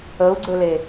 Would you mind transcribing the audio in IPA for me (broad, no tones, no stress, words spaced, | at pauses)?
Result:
əu̯ɡ͡ǀɵle